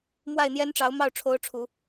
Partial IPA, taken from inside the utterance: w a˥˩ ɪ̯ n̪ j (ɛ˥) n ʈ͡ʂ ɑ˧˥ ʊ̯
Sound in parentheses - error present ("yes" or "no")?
no